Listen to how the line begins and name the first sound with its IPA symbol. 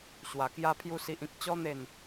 ɕ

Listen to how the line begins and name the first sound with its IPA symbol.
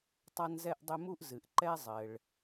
tˤ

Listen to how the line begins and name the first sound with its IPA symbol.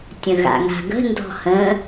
tʲ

